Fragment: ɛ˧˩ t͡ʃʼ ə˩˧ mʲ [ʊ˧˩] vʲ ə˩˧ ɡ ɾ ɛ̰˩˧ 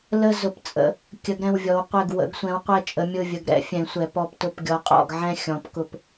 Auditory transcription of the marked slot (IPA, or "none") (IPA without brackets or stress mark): ʊ˧˩